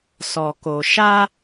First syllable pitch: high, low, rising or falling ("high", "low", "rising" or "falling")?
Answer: low